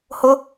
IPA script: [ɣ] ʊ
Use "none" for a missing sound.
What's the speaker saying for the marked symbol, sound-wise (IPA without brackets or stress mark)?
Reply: h